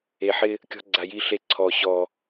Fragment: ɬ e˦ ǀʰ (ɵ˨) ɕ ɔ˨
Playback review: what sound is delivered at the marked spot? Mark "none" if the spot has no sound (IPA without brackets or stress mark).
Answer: ɔ˨